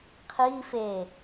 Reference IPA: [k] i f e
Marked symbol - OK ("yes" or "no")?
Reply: no